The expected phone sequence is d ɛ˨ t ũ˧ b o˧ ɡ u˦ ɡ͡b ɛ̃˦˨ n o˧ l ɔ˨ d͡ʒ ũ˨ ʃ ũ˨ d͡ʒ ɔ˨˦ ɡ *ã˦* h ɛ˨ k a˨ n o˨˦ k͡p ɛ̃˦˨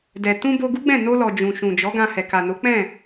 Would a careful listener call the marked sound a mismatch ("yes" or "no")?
yes